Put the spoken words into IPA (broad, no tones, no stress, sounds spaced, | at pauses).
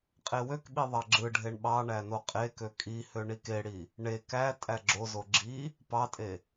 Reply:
qʼ e w ø k ɓ i ðˤ ɑ ɡ͡ǁ ɯ ɖʱ e ɳ ɓ ɑ ɳ æ n o qʼ e k ø kʼ i h ø ɳ i k e ɽ i | ɳ e k æ tʼ æ ɡ͡ǁ o z o ɡ͡ǁ i | p ɑ tʼ e